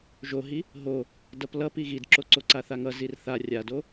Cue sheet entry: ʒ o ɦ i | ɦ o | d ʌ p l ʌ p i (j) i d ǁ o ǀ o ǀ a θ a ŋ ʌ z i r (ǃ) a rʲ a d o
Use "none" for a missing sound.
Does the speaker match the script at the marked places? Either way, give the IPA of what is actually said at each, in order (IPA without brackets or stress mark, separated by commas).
ɣ, θ